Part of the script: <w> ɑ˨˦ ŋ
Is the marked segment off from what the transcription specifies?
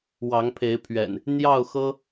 no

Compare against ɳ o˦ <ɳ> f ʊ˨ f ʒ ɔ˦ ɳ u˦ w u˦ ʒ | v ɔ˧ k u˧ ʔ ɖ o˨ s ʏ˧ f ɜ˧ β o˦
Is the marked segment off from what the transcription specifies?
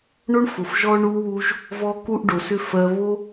no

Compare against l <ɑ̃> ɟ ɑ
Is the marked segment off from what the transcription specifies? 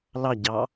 yes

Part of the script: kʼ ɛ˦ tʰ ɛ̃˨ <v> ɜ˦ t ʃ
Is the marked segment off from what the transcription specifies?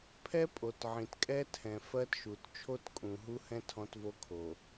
yes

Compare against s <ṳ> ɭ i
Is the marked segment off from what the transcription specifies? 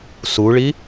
yes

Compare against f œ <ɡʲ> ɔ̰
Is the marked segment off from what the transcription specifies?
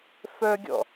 no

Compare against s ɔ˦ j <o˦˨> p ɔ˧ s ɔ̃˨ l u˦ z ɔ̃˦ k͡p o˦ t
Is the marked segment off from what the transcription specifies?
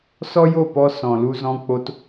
no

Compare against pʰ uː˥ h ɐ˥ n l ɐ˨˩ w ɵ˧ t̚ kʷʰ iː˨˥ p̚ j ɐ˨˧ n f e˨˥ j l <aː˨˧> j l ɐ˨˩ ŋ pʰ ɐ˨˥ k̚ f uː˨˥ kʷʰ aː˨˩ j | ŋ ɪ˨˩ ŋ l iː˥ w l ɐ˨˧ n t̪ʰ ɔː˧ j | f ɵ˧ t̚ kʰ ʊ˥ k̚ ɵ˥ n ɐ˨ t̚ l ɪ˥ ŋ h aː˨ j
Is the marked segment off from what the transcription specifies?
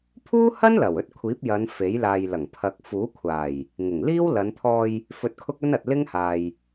yes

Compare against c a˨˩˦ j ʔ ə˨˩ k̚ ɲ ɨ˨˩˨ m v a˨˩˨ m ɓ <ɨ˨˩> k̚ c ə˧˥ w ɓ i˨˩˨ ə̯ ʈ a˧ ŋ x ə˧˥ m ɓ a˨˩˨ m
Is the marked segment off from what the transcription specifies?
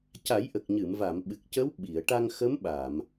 no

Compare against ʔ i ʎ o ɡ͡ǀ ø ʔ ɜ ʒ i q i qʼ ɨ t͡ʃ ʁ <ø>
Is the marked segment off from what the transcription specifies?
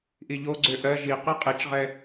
yes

